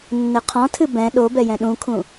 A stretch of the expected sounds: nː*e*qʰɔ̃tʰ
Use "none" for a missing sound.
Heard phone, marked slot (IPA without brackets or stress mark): ɘ